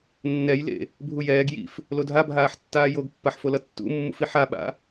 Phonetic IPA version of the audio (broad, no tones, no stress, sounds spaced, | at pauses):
nː ɛ j l ḛ | bʱ u j ɛː ɡ j ḭ f | l o dʱ a bʱ aː ħ tː aː j o ɡ pː a ħ f o l ʌ tː ṵ mː ṵ f i ħ a ɓ a̰